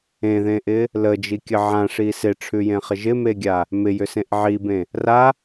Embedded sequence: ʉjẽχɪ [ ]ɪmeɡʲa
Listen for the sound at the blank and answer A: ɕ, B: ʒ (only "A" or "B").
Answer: B